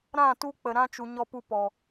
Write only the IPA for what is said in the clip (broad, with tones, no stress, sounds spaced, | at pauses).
ɾ ã˦˨ t u˦ k͡p ə˨ ɾ ã˦ t͡ʃ u˨ ɲ ɔ˧ p u˧ p ɔ˨